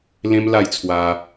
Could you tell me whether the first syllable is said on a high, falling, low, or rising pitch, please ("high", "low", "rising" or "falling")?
high